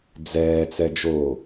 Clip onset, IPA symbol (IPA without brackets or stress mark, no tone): d͡z